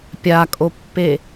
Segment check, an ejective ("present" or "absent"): present